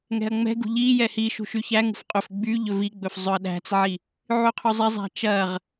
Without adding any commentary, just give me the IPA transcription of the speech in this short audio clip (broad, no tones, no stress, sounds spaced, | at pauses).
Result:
ŋ ɛ̤ ɐ̯ ŋ͡m ɛ̤ ɡ ṳ ʎ i j ɛ h i ʃ ṳ ʃ y ç æ ŋ ṳ f qʼ ɵ f ɡ͡b y ʎ ɵ v i ɡ͡b ɵ f zˤ ɵ ɐ̯ ɗ æ̤ t͡s ʕ i | ʕ y qʰ y zˤ ɛ zˤ æ̤ t͡ʃ ɐ ʁ